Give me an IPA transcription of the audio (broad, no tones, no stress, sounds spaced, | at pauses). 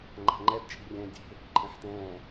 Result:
ŋ͡ǃ a̤ ŋ͡ǃ ɛ d t͡ʃʼ i̤ rʲ ɛ̃ː dʲ e̤ | ǃʼ ẽ ħ t ɛ̃ː